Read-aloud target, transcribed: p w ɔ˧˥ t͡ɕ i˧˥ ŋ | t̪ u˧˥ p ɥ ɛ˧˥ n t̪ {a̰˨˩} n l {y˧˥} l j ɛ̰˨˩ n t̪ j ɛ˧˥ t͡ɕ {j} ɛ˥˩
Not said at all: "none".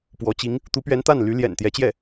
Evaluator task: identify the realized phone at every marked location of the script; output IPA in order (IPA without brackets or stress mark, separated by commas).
a˥˩, y˧˥, j